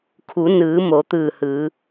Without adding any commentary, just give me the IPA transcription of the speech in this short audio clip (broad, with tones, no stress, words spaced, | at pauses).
kʰu˩˧nɯː˩˧ mo˩˧t̪ɯː˧˩hɯː˩˧